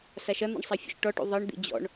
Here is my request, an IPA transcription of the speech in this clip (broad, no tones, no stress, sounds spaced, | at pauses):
s a ʃ ɐ n̪ ḛ ɳ sˤ ɐ fʲ ṵ ʃ ʈ ɔ ʈ ṵ ðˤ ɘ ɳ d̪ ḭ d͡ʑ ɔ̰ ɳ